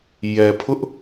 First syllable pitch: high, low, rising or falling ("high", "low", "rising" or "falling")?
low